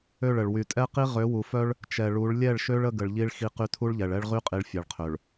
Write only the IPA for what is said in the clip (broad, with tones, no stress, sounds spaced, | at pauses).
ø˦˨ ɭ ə˨ ɭ w y˨ tʼ ɛ˦ q i˦ ʁ ø˨˦ w u˨ f œ˦ ɭ | t͡ʃ ɛ˨ ɭ u˨˦ ɭ lʲ ɛ˦˨ ɭ ʃ ø˦ ɭ ə˦ ɡ ə˨ ɭ ʎ i˦ ɭ x i˦ q y˦ tʰ u˦ ɭ ʎ ɛ˨ ɭ ɛ˦ ɭ ʁ y˦ qʼ i˨ ɭ fʲ ɛ˨ ɭ qʰ ø˨ ɭ